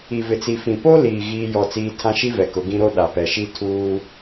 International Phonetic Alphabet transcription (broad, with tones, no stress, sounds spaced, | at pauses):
i˨ v ɪ˨ t͡s i˨ f ĩ˨ p o˦ l iː˨ ɣ iː˦ j ɔ˦˨ t͡s iː˦ tʰ ã˦ ʃ i˦ v ɛ˨ k ʊ˨˦ ɡ ĩ˦ ɾ o˦ ɗ a˨ p ɛ˨ ʃ i˦ tʰ uː˦